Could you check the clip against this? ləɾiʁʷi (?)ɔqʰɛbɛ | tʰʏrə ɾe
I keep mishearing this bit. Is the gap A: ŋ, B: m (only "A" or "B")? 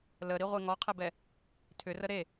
A